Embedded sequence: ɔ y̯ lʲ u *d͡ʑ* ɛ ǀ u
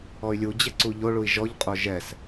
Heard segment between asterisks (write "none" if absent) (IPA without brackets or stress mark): d͡ʑ